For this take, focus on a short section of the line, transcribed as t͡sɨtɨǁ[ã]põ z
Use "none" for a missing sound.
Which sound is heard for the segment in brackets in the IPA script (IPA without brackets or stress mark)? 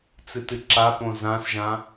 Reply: a